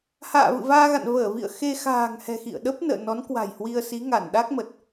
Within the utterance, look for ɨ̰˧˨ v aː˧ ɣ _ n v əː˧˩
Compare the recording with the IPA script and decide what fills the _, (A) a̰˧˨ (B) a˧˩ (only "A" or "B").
A